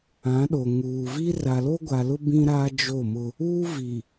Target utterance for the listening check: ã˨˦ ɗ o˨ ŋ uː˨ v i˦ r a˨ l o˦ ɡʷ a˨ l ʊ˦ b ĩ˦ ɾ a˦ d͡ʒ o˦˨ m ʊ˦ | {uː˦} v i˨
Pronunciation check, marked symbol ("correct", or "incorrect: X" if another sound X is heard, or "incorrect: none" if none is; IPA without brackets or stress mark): correct